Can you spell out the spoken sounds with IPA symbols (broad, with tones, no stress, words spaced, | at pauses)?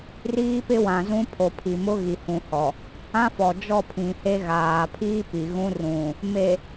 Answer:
riː˦pɪ˦wã˨ zũ˦pʰo˨pʰi˨ mʊ˦ɣi˨hũ˨hɔ˨ | ã˦fɔ˨d͡ʒɔ˦˨pʰĩ˨ he˦ ɣaː˨pʰiː˦pi˨ ɣũ˦rũ˨ | me˨